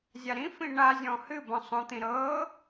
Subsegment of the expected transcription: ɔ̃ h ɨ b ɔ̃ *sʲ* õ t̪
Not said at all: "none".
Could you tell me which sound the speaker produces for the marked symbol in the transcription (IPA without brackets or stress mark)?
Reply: sˤ